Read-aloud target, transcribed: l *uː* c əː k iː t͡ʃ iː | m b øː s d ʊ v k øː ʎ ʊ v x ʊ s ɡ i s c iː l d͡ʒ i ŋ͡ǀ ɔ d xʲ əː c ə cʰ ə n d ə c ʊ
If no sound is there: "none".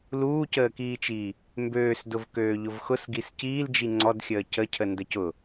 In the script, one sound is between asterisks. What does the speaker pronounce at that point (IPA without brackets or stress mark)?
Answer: uː